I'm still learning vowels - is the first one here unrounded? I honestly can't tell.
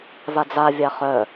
yes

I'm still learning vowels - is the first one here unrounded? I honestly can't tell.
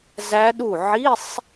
yes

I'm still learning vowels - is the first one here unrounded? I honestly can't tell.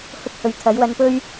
no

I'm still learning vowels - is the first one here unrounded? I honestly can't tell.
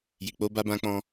yes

